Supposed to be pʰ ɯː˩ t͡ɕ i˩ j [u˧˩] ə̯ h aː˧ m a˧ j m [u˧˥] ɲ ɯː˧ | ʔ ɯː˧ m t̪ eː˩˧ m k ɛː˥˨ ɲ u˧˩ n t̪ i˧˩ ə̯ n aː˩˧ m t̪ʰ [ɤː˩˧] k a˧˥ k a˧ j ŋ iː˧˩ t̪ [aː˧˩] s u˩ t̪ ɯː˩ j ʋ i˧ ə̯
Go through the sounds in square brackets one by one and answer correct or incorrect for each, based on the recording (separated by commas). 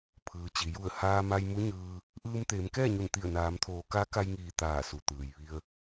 correct, correct, incorrect, correct